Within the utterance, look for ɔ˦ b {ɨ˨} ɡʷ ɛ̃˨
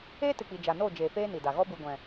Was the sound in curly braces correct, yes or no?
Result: yes